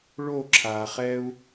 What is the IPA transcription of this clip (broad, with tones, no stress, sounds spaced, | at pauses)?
ɭ o˦˨ ǁʰ a˨ χ ɛ˦ u̯